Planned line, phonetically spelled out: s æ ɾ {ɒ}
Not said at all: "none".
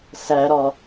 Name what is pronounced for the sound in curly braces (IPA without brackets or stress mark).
ɒ